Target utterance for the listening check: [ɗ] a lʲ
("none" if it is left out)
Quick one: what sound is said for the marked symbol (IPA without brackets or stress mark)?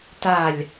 t